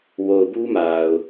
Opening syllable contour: low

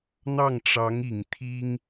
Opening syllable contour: falling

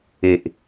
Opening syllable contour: low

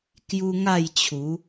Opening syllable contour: high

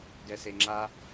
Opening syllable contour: low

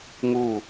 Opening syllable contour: falling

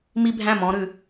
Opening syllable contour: high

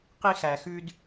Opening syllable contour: high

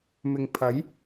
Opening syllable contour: low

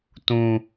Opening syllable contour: high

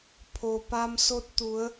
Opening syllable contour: low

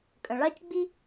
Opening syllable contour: low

